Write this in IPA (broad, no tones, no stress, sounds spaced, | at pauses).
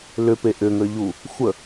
l ʏ p e ʔ ʏ ŋ ə ʎ u | xʷ ə